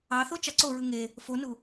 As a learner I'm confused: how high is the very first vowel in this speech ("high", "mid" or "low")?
low